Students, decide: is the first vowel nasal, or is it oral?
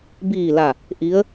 oral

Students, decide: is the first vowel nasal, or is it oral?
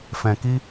nasal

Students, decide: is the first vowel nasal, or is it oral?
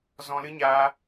nasal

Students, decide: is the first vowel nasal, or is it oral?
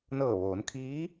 oral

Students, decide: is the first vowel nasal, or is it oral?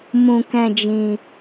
nasal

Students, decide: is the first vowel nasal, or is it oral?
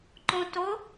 nasal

